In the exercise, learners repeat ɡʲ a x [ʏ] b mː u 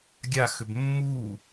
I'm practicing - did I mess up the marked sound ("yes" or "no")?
no